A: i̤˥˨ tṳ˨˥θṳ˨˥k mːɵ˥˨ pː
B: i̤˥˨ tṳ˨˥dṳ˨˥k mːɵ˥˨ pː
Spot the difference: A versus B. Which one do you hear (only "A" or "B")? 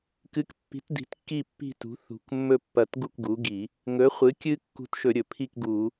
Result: A